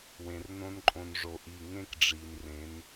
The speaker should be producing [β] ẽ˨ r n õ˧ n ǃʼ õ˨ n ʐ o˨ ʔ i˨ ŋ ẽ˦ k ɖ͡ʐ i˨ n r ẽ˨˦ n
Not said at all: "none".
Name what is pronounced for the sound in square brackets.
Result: w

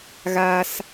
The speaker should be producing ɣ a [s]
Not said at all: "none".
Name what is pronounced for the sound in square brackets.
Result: s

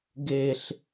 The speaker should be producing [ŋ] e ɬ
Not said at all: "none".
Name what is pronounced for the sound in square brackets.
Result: ɡ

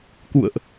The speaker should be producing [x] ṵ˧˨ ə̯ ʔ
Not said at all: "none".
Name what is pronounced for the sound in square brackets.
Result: k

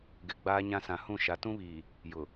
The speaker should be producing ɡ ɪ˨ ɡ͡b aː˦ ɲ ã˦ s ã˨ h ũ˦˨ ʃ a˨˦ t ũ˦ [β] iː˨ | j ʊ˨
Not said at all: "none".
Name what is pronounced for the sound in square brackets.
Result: β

